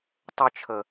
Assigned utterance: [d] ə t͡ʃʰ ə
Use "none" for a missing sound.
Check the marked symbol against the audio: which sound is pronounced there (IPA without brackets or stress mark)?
tˤ